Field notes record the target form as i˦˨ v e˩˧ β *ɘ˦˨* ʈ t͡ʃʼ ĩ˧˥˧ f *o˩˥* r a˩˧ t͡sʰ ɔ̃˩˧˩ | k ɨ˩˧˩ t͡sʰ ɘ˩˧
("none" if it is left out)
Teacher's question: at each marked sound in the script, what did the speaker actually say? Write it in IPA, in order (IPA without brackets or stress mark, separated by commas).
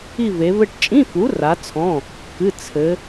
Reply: ɘ˦˨, u˩˥